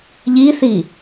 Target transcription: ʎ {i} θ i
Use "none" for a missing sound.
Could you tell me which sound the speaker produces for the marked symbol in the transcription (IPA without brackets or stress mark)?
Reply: i